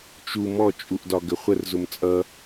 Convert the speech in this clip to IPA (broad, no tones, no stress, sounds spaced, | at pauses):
t͡ʃ u m ɔ t͡ʃʼ u ʔ d ɒ ɡ ə χʷ ə r z ʊ m t͡sʼ ʌ